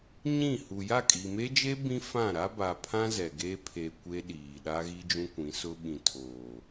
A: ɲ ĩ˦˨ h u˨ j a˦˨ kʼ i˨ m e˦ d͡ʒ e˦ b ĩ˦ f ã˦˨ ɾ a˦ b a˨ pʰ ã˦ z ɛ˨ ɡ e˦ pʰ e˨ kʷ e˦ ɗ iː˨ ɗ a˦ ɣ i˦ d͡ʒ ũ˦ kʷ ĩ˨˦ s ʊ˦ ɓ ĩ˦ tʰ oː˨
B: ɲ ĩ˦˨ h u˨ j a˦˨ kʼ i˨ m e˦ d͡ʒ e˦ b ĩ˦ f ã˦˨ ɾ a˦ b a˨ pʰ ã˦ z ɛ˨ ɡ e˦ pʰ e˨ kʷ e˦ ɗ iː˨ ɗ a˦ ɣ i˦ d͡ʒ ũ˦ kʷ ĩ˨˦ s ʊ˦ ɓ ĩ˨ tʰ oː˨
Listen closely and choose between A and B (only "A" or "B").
B